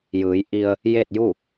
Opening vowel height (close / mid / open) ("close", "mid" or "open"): close